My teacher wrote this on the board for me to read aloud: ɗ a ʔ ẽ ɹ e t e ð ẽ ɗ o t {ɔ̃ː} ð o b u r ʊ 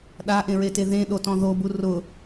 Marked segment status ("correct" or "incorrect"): incorrect